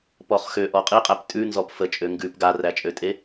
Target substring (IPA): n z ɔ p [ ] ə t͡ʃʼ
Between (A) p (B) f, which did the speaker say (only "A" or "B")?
B